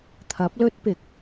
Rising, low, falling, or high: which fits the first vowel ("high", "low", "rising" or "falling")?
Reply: rising